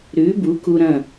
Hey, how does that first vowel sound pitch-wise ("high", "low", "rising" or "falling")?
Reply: rising